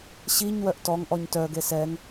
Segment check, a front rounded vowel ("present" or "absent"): present